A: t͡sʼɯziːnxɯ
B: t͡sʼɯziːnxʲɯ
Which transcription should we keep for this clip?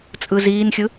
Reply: B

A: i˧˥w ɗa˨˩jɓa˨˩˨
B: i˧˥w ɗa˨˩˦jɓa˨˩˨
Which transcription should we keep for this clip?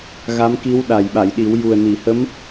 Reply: A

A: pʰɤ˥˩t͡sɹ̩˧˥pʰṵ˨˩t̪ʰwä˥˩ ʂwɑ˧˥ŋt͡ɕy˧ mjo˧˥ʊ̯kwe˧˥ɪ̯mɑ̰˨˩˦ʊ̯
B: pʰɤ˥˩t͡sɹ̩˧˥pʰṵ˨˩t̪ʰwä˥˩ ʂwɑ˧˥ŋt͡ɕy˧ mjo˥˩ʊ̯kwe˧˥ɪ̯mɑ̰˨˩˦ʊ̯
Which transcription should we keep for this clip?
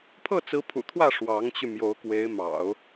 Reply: A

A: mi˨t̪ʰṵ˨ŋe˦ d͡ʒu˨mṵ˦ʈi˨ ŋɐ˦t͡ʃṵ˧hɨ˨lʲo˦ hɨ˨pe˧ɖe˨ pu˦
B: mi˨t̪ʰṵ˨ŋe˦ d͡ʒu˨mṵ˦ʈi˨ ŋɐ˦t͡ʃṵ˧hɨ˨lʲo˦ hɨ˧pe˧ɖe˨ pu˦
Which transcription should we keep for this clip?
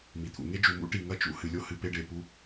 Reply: A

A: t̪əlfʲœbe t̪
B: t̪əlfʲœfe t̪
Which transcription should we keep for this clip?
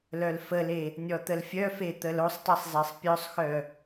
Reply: B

